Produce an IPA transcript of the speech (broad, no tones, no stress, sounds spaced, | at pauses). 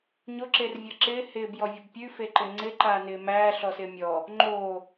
ɲ o ǁ e r vʲ ɤ ǁ ɪː h ɪː b j ɔ vʲ ɔ b pʲ ʉ f e ǃ ɪ ŋ͡ǀ ɪ ǃ aː n ɪː m æː ɬ ɔ s ɪː mʲ ɔ | ŋ͡ǃ oː